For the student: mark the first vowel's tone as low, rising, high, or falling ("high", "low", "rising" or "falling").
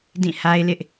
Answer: falling